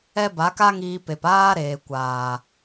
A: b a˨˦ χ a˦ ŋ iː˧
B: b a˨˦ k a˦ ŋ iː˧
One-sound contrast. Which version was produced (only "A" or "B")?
B